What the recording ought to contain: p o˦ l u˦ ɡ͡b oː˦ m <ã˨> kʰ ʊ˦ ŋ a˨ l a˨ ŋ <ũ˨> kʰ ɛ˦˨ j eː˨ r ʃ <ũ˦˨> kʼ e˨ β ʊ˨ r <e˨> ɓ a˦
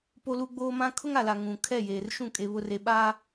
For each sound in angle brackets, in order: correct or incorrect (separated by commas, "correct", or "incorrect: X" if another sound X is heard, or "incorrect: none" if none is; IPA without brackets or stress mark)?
incorrect: ã˦, correct, correct, correct